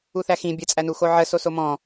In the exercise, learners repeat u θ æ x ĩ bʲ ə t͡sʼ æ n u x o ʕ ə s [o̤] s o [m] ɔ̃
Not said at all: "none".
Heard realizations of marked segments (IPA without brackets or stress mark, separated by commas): o, m